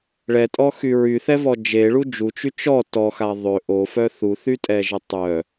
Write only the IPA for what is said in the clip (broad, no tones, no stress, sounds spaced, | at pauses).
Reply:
ɭ ɛ tʼ ɔ x y ɹ y θ ɛ v ɔ d͡ʒ e ɭ u d͡ʒ u t͡ʃ y t͡ʃ ɔ t ɔ x a ðˤ ø ʔ o f œ θ u θ y tʼ ɛ ʒ ə tˤ œ